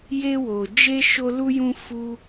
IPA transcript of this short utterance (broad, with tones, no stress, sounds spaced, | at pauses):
j e˦ w o˧ d͡ʒ e˦ ʃ o˦ l u˦ j ũ˦ f u˦